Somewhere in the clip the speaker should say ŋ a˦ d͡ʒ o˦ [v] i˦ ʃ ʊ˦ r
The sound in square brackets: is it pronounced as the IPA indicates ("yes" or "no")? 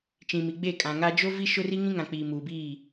yes